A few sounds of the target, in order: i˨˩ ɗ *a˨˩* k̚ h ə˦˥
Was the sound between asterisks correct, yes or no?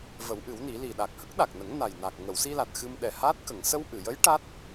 yes